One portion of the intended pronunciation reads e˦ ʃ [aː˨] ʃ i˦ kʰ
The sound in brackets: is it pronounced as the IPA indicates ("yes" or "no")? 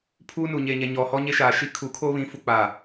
yes